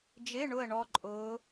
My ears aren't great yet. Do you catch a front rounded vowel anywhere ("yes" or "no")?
no